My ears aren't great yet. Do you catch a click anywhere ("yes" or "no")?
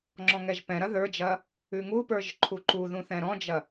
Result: yes